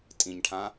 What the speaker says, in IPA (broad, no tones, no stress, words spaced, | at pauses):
tʼĩɲʈʰã